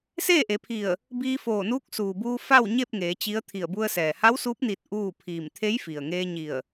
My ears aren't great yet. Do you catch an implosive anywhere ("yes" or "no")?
no